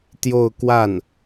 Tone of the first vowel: falling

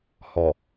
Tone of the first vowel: low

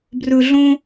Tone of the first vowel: low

